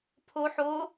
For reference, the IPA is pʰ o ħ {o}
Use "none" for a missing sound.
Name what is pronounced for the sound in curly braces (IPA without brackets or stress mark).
o